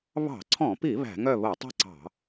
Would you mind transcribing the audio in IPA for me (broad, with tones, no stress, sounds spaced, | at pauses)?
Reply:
β ɑ̤˧˩˧ ǀʰ ɔ̃˧˩˧ p i˧˩˧ β æ̤˧˩˧ ŋ œ˥˨ β o˧˩˧ tˤ i̤˥˨ ǀ ɑ̤˧˩˧